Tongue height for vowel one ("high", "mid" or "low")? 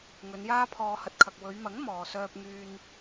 mid